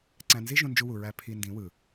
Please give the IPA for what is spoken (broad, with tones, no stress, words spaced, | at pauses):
ǀæ̃˧ nzi˦ ʒũ˧nd͡ʒu˧wu˨ ɹæ˧ pʰi˧ ndĩ˨˦wɯ˨